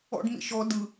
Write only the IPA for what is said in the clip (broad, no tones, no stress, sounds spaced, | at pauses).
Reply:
ɔ̰ ɖ m ḭ ʃ ɔ d ɯ